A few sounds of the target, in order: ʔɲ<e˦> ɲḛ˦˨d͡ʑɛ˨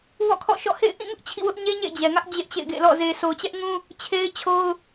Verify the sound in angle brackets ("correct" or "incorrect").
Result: correct